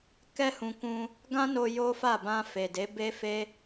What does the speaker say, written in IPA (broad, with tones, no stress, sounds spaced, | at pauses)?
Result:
k ɛ˦ h ũ˧ k ũ˧ | ɡ ã˦ n o˧ j o˦ f a˦˨ b ã˧ f e˨ d e˨˦ b e˦ f e˦